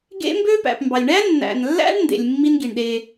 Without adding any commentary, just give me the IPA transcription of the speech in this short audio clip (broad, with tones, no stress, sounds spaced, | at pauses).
ɡ ḛ˦ m b ø˦ p æ̰˨ p m b ɑ˨ lʲ ɳ æ˦ nː æ̰˨ n lː æ̰˦ ɳ n d ḛ˨ lʲ mː i˦ n ɡ i˨ ɳ ɗ e˦